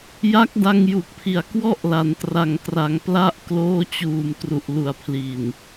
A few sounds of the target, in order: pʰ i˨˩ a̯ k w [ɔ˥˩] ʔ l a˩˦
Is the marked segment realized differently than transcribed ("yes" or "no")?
no